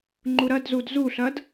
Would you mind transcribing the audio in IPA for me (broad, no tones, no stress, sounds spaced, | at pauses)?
ŋ͡ǃ u ɾ ɐ d z u d z u ɬ ɐ d